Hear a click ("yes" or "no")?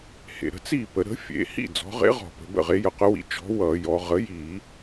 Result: no